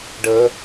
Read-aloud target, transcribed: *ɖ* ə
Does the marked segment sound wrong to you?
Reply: no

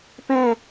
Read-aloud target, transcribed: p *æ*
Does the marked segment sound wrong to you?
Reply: yes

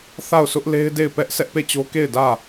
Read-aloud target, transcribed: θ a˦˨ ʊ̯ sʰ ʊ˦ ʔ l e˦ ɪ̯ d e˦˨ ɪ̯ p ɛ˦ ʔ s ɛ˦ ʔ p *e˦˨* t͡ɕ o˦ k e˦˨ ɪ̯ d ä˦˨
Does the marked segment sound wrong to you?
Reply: no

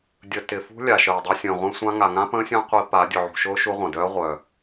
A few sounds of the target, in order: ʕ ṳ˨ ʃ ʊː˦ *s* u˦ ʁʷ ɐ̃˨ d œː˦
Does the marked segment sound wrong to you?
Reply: yes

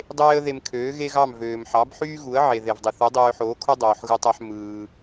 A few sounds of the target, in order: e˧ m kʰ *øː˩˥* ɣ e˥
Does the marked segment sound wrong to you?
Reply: no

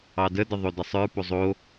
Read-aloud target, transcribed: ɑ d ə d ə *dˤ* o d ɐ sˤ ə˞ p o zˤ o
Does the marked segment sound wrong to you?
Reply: yes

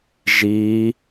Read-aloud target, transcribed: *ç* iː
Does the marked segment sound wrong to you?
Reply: yes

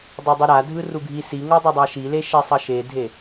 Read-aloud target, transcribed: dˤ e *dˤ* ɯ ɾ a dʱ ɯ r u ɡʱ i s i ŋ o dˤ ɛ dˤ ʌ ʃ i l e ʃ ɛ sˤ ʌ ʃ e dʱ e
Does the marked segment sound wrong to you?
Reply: no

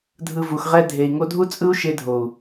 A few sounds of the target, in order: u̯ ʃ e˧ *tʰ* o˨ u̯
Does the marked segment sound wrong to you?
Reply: yes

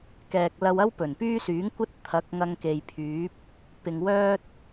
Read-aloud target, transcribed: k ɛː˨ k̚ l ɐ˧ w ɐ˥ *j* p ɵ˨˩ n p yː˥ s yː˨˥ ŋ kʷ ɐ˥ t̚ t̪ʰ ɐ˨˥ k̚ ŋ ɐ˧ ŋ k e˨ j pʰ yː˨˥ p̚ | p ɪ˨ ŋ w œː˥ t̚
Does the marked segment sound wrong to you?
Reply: yes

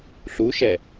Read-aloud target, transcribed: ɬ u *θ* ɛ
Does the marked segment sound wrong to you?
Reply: yes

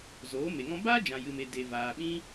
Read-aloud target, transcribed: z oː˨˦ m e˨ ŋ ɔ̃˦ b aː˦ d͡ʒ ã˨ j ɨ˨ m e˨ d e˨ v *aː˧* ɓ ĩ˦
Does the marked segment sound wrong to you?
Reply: yes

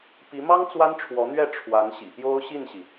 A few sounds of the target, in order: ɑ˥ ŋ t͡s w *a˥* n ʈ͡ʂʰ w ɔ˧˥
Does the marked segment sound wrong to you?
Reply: no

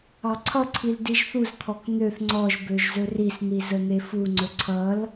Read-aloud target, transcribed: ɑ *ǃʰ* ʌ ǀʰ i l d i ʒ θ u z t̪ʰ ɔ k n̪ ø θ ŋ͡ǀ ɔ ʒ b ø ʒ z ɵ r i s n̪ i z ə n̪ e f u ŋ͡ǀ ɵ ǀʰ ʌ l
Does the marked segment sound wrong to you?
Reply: yes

